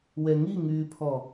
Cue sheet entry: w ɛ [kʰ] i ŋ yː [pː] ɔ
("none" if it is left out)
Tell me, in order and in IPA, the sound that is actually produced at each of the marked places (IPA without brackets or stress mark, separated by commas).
ŋ, pʰ